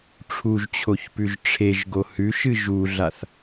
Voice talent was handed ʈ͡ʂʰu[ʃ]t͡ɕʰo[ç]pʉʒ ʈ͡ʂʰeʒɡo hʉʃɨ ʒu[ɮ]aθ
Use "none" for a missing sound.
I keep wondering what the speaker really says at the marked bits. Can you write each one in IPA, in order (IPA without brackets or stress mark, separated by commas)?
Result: ʒ, ç, ɮ